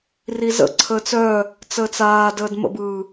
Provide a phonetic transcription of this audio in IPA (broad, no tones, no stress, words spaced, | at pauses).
rizə̰ǀʰəːt͡s œ | t͡səːt͡saːdəːd mə̰bɯː